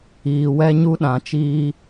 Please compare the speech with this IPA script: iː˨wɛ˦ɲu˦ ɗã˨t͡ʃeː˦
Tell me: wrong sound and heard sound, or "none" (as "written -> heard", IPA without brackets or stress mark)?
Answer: eː˦ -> iː˦